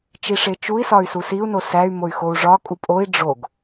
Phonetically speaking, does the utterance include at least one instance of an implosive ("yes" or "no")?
no